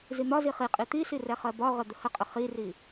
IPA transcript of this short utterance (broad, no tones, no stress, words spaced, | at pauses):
zin̪ɒzi χiqʼi t̪isi rɛχɜbɒʁə d̪əhəqʼə χiri